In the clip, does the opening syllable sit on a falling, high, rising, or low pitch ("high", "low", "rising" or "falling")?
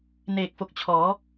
low